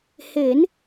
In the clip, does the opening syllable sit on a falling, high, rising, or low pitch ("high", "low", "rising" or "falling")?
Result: rising